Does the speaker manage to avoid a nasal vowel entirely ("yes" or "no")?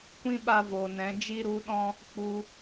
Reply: no